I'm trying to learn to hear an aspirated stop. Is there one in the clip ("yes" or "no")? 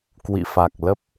no